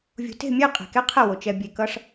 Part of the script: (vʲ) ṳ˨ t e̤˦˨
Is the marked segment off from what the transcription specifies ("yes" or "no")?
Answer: no